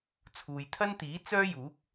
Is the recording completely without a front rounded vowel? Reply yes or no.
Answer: no